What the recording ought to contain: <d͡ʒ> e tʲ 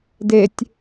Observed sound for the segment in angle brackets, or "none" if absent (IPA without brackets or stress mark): d